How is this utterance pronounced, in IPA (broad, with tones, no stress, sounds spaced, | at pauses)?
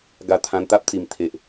ɡ a˧ t̪ʰ ã˧ n t̪ a˦ p̚ t͡s i˧ m t̪ʰ e˦ ʔ